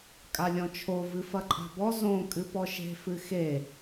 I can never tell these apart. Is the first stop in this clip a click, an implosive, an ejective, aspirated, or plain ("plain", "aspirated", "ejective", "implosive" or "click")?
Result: ejective